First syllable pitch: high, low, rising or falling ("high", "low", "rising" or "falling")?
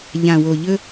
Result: low